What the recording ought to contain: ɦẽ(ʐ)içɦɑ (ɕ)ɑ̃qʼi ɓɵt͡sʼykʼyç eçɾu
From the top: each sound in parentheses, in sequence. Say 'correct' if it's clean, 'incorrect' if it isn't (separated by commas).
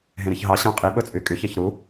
incorrect, correct